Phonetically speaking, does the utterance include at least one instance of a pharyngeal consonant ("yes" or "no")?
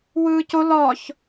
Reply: no